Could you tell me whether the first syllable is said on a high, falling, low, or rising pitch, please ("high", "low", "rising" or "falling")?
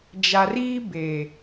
low